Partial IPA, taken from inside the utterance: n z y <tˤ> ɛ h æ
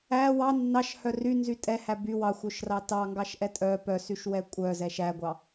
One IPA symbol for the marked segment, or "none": tʼ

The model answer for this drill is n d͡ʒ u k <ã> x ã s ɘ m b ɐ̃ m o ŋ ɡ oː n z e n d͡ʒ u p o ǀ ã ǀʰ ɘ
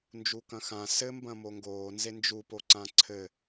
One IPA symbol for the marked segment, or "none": ɐ̃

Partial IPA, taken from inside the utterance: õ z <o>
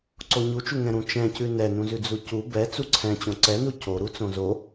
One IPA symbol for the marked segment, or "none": o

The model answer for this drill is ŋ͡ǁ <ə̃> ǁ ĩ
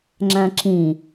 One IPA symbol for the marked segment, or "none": æ̃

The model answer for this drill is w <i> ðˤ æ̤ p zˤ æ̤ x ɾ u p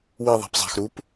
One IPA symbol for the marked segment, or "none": i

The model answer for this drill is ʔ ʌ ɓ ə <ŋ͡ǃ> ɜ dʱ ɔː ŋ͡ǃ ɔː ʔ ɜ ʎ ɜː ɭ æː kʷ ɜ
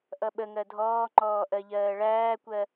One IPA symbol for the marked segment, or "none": ŋ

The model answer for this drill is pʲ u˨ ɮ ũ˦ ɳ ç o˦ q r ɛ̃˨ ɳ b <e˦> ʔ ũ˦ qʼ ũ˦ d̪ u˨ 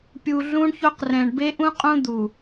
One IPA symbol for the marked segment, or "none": e˦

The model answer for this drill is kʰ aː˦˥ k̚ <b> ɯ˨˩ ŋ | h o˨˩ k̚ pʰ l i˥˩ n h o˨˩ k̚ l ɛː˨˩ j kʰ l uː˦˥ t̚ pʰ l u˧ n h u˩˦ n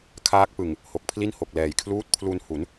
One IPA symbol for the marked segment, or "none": p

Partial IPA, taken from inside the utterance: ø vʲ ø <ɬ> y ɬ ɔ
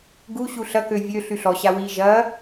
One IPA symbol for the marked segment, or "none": ɬ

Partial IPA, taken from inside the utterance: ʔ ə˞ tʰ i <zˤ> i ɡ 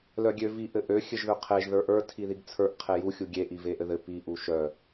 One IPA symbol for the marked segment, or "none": ð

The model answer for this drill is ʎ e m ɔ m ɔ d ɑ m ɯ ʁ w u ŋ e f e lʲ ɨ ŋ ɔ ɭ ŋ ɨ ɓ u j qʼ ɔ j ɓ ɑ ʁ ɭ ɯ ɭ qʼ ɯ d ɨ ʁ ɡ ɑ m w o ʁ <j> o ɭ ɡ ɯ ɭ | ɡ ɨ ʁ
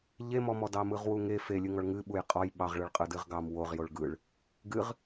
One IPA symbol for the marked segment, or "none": j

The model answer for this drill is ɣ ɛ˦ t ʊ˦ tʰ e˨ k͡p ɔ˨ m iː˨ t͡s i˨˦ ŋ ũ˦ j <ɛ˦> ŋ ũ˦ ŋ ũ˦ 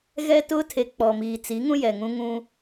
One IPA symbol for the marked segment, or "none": ɛ˨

